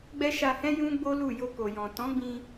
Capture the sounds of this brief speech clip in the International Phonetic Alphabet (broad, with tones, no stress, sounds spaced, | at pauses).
ɡ͡b ɛ˦ ʃ a˧ h ɛ̃˦ j ũ˦ ɡ͡b o˦ l u˦˨ j o˧ k o˨ j ɔ̃˨ t ɔ̃˨˦ ɡ͡b ĩ˧